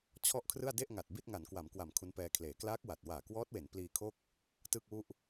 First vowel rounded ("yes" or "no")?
yes